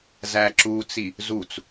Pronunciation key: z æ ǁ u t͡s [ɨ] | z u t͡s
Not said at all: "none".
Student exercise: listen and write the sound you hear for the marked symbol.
i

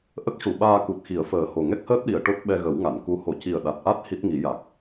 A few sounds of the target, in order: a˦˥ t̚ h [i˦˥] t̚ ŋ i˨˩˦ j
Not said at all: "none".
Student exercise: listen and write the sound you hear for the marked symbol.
i˦˥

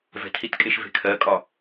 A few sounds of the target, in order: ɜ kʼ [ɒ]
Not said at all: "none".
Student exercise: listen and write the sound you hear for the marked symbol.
ɒ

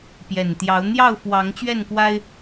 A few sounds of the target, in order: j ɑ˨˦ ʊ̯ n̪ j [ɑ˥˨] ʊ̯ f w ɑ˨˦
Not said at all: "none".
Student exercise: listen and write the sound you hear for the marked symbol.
ɑ˥˨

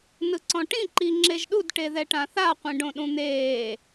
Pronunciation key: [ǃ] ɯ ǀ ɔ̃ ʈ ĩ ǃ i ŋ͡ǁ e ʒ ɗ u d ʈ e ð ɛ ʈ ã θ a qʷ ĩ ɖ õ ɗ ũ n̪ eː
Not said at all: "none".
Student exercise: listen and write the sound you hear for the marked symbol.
n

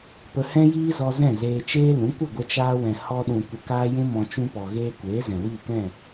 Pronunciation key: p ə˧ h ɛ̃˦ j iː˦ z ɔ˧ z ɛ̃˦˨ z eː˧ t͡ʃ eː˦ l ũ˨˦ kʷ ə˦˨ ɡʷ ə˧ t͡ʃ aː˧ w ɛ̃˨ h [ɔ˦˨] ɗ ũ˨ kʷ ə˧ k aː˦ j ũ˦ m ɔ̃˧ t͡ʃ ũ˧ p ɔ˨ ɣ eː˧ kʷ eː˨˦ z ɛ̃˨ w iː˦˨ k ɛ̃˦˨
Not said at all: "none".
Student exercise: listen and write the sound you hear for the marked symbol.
ɔ˧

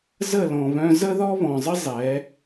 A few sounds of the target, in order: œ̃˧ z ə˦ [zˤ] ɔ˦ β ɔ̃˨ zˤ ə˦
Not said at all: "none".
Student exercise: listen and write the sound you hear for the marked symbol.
ð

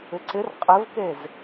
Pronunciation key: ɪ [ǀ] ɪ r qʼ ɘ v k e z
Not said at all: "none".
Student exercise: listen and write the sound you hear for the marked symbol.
ǀ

